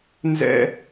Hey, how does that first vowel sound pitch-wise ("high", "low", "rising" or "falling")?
high